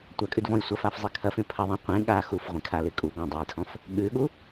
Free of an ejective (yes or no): no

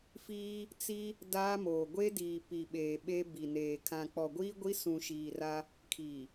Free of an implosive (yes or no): no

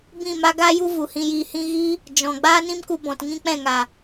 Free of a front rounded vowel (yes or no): yes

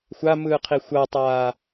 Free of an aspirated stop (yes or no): no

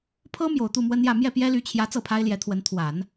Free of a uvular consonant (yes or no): yes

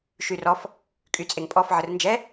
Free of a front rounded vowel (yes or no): no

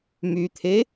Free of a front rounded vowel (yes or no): no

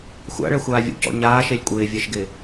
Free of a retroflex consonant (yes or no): no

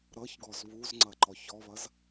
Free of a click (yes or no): no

